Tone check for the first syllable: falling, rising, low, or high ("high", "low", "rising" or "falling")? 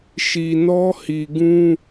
low